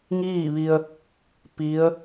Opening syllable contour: falling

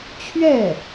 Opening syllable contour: falling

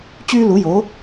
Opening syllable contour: high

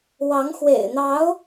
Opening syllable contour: rising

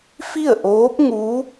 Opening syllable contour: falling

